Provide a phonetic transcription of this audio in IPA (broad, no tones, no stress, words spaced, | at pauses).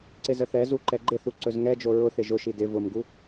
ǀɪzəθɛzu ǃɛɡ͡ǃɪθu ǀɵzŋɛd͡ʒo ɹʊθɪ ʒʊʃi dɪ vʊmɡu